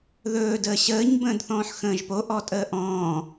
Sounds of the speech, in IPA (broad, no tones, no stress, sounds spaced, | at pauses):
ð ɵː d əː ɕ əː ɲ b ə̃ː d θ ɔ̃ː ħ x ə̃ː ʒ p o ʔ ɔ tʼ əː ʔ ɔ̃ː